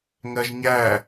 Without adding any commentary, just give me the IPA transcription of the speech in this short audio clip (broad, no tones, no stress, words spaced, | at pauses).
ŋɜʒɲæ